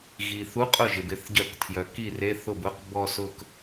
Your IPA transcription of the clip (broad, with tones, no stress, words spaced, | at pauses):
ɣi˩ θu˧˥˧qʼʊ˥˩ʒɪ˩b ɪ˥˩θɟœ˧˩˧ktʰjœ˩ ki˥˩re˧˥˧θʊ˥˩b ʊ˧˥˧q bɔ˥˧sʊ˥˧k